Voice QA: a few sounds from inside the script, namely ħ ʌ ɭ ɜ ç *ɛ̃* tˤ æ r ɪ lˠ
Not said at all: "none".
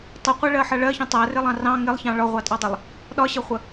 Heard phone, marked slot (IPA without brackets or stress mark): ə̃